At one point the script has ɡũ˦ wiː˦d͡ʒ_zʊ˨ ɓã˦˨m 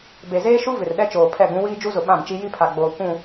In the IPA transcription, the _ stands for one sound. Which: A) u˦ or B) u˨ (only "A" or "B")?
A